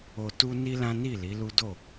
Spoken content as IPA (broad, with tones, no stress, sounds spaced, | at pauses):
o˨ t u˧ n i˦ l ã˦ n i˦˨ l i˨˦ l u˦ d o˦˨